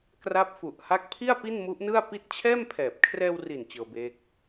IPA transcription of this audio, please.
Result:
kra˦˥p̚fu˨˩ʔha˦˥k̚ pʰi˥˩a̯ pi˥˩nmu˦˥ʔnɯ˥˩a̯ pi˦˥t̚t͡ɕʰɛː˥˩mpʰɛː˨˩p̚ kʰrɛː˧wri˨˩n t͡ɕɤː˧beː˦˥k̚

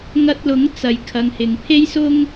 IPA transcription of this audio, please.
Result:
ŋɐ˧t̚lʊ˨˥ŋ t͡sɐ˨jkʰɐ˨˧ŋhɪ˨ŋ pʰe˥jsʊ˥ŋ

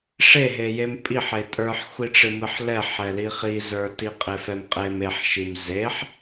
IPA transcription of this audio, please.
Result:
ʂeɦejem pʼiħe tʼə˞ħxʷiʈ͡ʂɨ mɨħlɛħɛli χizə˞ tiqʼefɛmqʼem eħʃim zeħ

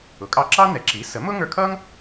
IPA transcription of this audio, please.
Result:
ʊ˩˥kʼɑ˧ǁɑ˥ nɛ˩˥ǁi˩˥sə˩˥mʊ˥ ŋə˞˧kʰʌ˥ŋ

